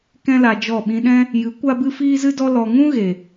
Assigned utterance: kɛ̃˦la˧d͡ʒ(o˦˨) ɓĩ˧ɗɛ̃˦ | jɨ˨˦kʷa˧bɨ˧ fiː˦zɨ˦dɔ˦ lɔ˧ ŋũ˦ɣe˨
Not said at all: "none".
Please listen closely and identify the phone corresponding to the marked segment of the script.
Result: ɔ˦˨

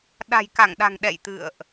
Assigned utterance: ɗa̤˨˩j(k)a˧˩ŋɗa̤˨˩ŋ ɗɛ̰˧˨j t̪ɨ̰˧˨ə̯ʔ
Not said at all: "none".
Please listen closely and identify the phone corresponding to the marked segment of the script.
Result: k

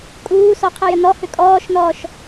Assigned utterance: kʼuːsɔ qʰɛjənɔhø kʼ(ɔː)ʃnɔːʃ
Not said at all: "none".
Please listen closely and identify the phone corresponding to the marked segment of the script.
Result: ɔː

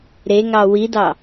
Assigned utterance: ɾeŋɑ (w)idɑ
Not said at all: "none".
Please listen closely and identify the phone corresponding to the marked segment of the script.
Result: w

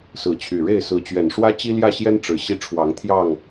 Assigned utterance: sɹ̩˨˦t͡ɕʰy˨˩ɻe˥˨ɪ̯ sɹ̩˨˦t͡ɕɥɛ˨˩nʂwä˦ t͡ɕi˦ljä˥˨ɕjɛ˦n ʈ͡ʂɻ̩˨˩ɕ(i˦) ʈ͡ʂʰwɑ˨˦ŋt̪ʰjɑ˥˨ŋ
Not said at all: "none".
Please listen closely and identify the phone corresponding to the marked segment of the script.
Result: i˦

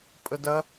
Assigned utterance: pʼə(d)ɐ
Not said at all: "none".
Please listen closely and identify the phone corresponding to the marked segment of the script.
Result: d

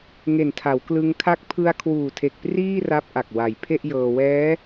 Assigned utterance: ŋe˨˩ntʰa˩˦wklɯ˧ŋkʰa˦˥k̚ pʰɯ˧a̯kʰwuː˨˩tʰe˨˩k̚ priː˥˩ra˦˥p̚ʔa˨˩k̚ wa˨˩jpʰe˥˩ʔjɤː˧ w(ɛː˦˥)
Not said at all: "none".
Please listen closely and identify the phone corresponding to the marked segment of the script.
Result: ɛː˦˥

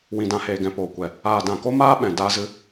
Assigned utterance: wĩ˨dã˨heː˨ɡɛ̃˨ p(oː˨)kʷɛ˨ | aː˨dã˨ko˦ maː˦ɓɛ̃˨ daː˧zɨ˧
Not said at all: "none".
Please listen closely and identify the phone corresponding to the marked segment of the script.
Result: oː˨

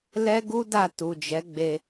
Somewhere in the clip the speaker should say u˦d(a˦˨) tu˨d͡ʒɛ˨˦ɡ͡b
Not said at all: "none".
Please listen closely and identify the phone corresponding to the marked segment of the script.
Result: a˦˨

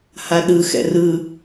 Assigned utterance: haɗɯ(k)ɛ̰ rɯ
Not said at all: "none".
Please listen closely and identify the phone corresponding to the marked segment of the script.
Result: x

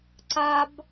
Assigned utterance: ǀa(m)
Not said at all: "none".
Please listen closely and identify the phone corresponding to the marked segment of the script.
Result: b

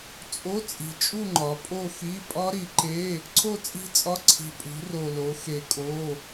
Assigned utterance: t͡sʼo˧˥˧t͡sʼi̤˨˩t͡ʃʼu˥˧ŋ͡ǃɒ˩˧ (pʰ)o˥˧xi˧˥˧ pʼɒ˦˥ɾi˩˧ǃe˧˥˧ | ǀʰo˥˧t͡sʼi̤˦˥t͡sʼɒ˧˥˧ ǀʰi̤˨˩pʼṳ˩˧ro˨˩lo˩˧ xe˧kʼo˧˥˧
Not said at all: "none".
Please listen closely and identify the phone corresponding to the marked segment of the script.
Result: pʼ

